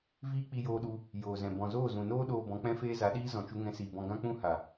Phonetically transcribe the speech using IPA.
v iː˦ k͡p i˧ j oː˧ ɗ u˧ | j oː˨ z ɛ̃˨ b ɔ̃˨ z oː˦˨ z ũ˨ n oː˦ ɗ oː˧ b ɔ̃˨˦ k͡p ɛ̃˦ f eː˦ z a˨˦ ɗ iː˦ z ɔ̃˨ t͡ʃ u˧ ŋ ɛ̃˧ s iː˨ b ɔ̃˧ ɡ ã˦ k͡p ũ˦ h a˨

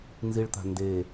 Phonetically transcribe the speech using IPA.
n z i ɭ t̪ a̤ n d e

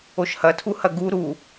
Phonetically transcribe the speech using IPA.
o ʃ h ɐ tʰ u h ɐ ɡ u ɾ u

